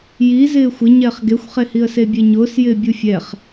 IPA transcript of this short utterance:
ji zɪːxʷɪ ɲɛːχɡexʷχehiə̯ sebʲeɲʊːs jɪːbʲufʲɛχ

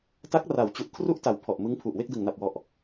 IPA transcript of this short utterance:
ta˦˥k̚ra˩˦w t͡ɕu˨˩ʔkʰru˥˩ʔta˨˩w pʰɔ˨˩ʔmɯ˦˥ŋpʰu˨˩ʔ we˥˩k̚dɯ˨˩ŋna˨˩p̚wɔ˨˩ʔ

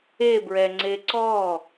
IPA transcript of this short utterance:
ebɹɛŋ͡ǀe ǀɔ

